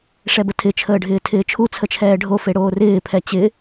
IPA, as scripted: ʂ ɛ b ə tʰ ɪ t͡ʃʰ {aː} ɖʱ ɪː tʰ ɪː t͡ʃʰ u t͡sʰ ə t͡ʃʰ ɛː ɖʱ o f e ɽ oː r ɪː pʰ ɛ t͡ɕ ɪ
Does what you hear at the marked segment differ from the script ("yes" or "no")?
yes